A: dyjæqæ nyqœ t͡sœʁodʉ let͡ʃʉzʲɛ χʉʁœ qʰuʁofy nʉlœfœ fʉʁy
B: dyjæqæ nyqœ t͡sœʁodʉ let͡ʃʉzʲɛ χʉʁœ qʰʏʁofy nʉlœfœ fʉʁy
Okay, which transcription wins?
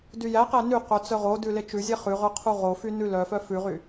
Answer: A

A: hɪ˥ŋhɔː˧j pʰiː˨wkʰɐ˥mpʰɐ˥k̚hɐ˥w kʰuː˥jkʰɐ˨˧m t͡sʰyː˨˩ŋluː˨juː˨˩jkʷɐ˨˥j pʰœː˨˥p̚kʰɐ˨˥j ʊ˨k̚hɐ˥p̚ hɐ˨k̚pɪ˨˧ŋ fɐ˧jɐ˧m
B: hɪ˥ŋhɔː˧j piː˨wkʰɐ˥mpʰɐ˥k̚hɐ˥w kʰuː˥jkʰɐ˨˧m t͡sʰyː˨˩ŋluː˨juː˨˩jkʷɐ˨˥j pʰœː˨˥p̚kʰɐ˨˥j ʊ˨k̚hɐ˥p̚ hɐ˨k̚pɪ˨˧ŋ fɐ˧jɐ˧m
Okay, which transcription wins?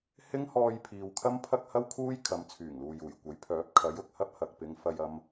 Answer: A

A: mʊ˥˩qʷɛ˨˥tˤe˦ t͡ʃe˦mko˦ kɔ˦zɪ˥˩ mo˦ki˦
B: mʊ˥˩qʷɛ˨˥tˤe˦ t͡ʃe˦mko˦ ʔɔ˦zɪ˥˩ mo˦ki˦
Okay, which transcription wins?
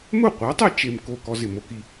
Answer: A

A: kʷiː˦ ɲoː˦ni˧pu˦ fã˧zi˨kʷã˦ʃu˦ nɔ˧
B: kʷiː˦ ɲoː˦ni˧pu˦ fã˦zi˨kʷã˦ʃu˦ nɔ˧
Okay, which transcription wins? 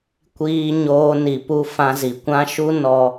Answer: A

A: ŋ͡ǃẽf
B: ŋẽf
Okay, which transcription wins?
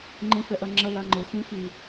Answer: A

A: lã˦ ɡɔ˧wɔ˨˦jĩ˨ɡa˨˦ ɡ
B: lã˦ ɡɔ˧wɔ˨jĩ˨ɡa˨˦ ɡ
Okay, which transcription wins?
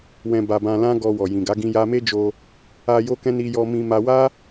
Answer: B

